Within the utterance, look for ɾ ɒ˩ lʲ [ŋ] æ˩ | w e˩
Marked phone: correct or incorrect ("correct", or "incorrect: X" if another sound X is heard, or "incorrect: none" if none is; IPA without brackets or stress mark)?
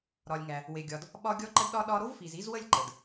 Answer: correct